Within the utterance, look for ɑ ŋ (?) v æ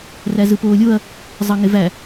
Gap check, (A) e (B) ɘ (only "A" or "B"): A